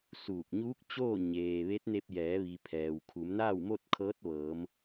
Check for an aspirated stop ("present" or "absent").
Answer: present